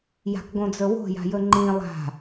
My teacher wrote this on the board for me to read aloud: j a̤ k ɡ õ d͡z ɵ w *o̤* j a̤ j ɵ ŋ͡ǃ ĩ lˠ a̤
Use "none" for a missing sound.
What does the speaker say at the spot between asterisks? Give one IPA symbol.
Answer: o̤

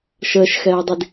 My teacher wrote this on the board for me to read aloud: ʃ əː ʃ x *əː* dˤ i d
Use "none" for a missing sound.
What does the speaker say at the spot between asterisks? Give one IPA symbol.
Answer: ɛː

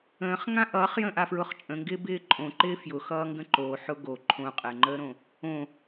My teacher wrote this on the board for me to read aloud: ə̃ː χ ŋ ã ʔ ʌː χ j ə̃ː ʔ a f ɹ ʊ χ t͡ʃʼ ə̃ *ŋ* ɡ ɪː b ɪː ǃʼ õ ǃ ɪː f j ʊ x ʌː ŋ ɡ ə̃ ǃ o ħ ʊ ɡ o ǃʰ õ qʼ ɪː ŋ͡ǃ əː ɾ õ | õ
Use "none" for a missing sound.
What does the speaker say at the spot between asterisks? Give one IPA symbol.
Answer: ŋ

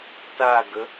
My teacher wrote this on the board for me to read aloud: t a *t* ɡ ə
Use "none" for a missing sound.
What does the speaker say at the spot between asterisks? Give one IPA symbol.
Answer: none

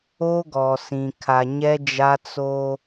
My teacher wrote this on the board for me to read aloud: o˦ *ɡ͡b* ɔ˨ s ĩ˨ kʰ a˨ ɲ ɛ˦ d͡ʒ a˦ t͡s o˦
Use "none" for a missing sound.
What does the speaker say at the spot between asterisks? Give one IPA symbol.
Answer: ɡ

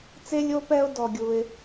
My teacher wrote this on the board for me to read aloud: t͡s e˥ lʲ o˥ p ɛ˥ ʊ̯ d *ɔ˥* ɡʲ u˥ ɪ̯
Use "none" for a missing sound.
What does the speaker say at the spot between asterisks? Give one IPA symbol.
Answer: ɔ˥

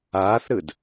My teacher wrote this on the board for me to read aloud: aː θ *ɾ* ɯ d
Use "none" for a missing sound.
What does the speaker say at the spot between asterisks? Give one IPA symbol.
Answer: ɾ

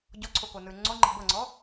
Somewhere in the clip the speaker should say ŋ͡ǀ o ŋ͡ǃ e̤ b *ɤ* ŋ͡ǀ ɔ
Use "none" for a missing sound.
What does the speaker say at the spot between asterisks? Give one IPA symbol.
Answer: ɤ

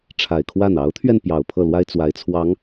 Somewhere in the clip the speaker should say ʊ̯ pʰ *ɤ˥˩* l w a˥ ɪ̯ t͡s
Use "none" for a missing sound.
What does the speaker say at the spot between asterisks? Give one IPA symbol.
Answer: ɤ˥˩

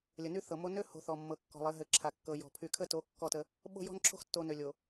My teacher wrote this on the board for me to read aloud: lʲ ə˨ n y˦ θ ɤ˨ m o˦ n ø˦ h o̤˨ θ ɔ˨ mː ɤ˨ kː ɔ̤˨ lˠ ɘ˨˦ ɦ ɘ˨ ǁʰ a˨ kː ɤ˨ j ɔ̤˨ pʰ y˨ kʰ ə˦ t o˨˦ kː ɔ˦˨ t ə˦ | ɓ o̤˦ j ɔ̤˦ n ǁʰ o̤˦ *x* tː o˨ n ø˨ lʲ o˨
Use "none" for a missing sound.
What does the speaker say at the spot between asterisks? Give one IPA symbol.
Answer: x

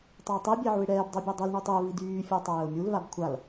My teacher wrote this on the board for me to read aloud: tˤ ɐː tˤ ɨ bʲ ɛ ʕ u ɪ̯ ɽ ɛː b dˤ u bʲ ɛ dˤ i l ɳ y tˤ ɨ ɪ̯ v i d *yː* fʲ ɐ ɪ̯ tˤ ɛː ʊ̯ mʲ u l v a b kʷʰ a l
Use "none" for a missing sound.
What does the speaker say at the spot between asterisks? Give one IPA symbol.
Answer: yː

